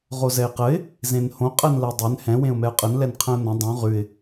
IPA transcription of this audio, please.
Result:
ʁ o z ɛ ɪ̯ q ə ɪ̯ | z ẽ n h õ qʼ ɜ n l ɜ dˤ ɛ n h ɛ̃ w ẽ ʊ̯ m ɛ ʊ̯ qʼ ə n l ɛ n qʰ ə̃ ʊ̯ n ə̃ dˤ õ ʁ ʉ ɪ̯

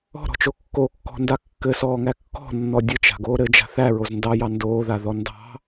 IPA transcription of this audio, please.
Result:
ɔ̤ ɾ ɔ̤ t͡ʃ o kː o kː ɔ̤ n d a kː ɘ s ɔː ŋ æ kː ɔ̤ nː ɔ dʲ ɘ t͡ʃ a̤ ɡ oː ɾ ɘ d͡ʒ a̤ θ æ ɹ o z n d ɑ j ɑ n d oː ð a ð ɔ n d ɑ̤

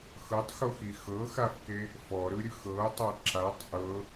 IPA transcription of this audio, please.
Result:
x ɤ tˤ x o x i x ɤ x a f k e | f ɔ ɾ ɯ ɾʲ ɯ x ɤ o̯ tˤ a ǁ a tˤ ʔ ɤ

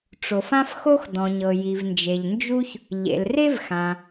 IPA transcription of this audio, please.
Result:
ʈ͡ʂ o˩ f ã˥ f x o˥ x d ɔ̃˩ ɲ ɤ˩ j i˩ v n d͡ʒ e˩ ʎ n d͡ʒ u˥ ç | ʎ ḛ˩ l r e˥ v x ã˩

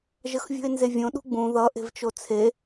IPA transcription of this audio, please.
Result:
ʒ ə x vʲ ṳ e̯ n z e vʲ õ ɗ ṳ ɡ͡b ũ ð ʌ ʔ e̤ v t͡ʃ o t͡sʰ e

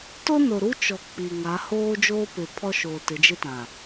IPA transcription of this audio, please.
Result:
t ʊ˦ n o˨ ɾ u˦ t͡ʃ ɔ˨ k͡p i˨ ŋ a˨˦ h oː˦ d͡ʒ oː˦ p ɪ˨ pʰ ɔ˦ ʃ oː˨ t ɪ˨˦ d͡ʒ ɪ˦ t ã˨

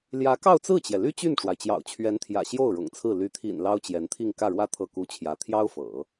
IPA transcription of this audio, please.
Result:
l j ä˧˥ k ɑ˥˧ ʊ̯ t͡s ɹ̩˥˩ t͡ɕ j ɛ˩ l y˥ t͡ɕ y˥˩ n ʈ͡ʂ w a˩ ɪ̯ t͡ɕ j ɑ̰˨˩ ʊ̯ t͡ɕʰ ɥ ɛ˧˥ n t̪ʰ j ä̰˨˩ ɕ j o˥˩ ʊ̯ ɻ ʊ̰˨˩ ŋ t͡sʰ ɹ̩˥˩ l y˧˥ t̪ʰ ḭ˨˩ n l ɑ˥ ʊ̯ t͡ɕ j ɛ˧˥ n t̪ʰ i˥˧ ŋ k ä˥˩ ɻ w ä˥ t̪ʰ ɤ˥˩ k u˥ t͡ɕʰ j ä˧˥ t̪ʰ j ɑ˥ ʊ̯ f ɤ̰˨˩˦

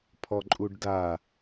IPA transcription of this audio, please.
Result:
pʰ ɔ ǃʼ u ɖ d a

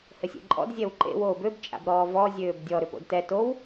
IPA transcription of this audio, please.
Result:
h ɘ sʲ ḛ ǃʼ ɔ̰ d zʲ ɛ w ǃ ḛ w oː b ø b t͡ʃʼ a̰ b ɾ ɔː v ɔ zʲ øː b dʲ ɔ ɾ ʏ p o̰ d t ɛ t o w

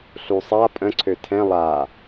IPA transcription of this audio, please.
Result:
ɬ u sˤ a pʼ ə̃ ǀʰ ø tʰ ɛ̃ lˠ a

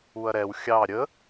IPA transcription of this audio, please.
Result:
u ɐ̯ ɾ ɛ w xʲ ɑ ɾʲ ə

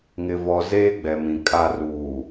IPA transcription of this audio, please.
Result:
ŋ ɪ˨ v ɔ˨ z eː˦ ɡ͡b ɛ˨ m ĩ˨ kʼ a˨ r uː˨

